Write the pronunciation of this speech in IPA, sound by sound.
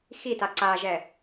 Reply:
x i t a ǀ a ʒ ɛ

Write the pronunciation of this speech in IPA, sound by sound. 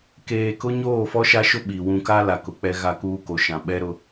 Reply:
k eː˨ k ʊ˦ ɲ oː˦˨ f ɔ˦ ʃ a˦ ʃ ʊ˦ ɓ i˨ w ũ˨ k a˦ l a˨ k ʊ˨ k͡p ɛ˦ ɣ a˦ k uː˦ k o˨ ʃ ã˨ ɓ ɛ˦ ɾ ʊ˦

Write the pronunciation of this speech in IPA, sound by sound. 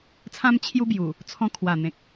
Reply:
t͡sʰ ã˧ m t͡ɕʰ j u˦ b j u˨˩ | t͡sʰ ɔ̃˧ kʰ w a˨˩ n̪ ẽ˨ k̚

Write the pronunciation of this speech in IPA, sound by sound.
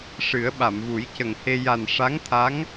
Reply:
ʂ ɨ˨˩˦ ə̯ ɓ a˨˩˨ m v u˨˩˦ j c ə˨˩ ŋ h e˧ j a˨˩ n ʂ a˧˥ ŋ t̪ʰ a˧˥ ŋ

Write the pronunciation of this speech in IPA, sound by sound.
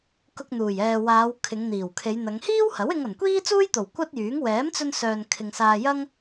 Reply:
k ʊ˧ k̚ n̪ uː˨˩ j ɛː˨ w aː˨˧ w kʰ ɪ˨˧ ŋ n̪ iː˨˩ w kʰ e˨˧ j n̪ ɐ˨˧ ŋ h iː˥ w h ɐ˨˥ w ɪ˧ ŋ ɐ˨˩ n kʷ iː˥ t͡s uː˥ j t̪ o˨˩ w kʷ ɐ˥ t̚ j yː˨˥ ŋ w ɛː˨˥ m t͡s ɵ˧ n s œː˨ n kʰ ɪ˨ ŋ s aː˧ j ɐ˥ ŋ

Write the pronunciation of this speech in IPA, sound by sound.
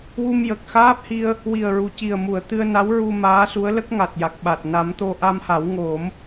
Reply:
w u˧ m j ə˨˩ k̚ x aː˦˥ p̚ h i˧ ə̯ | w i˨˩ ə̯ ɹ u˨˩˨ c i˨˩ ə̯ m u˨˩˨ ə̯ t̪ ɨ˧ ə̯ n a˧˥ w ɹ u˧ m aː˧˥ s u˧˥ ə̯ l ə˦˥ k̚ ŋ a˨˩ t̚ j a˨˩ k̚ ɓ a˨˩ t̚ n a˨˩˦ m t̪ o˧ ʔ a˧ m h a˨˩˦ w ŋ o˨˩˦ m

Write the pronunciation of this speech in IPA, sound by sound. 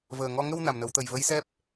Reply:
v əː˨˩ ŋ ɔ˧ ŋ ə˧ w n a˨˩ m n ə˨˩˦ w t̪ ə˨˩ j v ə˧˥ j s ɛ˦˥ p̚

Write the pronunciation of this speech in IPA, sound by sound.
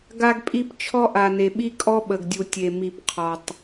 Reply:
ɡ a˦ ɡ pʼ i˦ p t͡ʃʰ ɔ˦ ʔ a˨ n e˨ ɓ i˦ kʼ ɔ˦ ɓ ə˨ ɡ dʲ u˨ tʲ e˨ m i˨ p qʰ ɔ˨ tˤ

